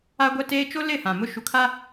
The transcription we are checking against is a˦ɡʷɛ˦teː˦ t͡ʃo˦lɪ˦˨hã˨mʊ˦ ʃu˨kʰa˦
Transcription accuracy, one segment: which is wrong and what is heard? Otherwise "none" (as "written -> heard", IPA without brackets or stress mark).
none